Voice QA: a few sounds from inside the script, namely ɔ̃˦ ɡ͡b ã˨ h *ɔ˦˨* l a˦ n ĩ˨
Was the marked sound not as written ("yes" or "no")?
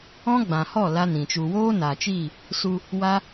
no